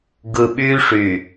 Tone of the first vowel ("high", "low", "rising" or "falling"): low